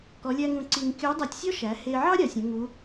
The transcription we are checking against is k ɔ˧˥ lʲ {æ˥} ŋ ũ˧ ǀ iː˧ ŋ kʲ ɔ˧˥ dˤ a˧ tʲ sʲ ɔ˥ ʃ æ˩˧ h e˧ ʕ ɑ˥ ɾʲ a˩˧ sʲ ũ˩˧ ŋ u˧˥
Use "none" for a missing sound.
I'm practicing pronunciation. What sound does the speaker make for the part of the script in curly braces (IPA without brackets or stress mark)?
æ˥